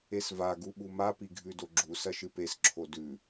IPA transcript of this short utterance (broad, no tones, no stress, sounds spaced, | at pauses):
e s v a ɡ u ɓ u m a p i ɡʱ ʉ d o ɡ͡ǁ u s ɐ ʃ ɨ p e s ǁʰ o d ʉ